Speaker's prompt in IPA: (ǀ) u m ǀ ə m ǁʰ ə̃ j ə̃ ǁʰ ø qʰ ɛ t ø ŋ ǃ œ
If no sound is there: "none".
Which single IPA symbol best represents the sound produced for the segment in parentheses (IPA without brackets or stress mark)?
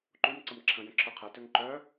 ǃ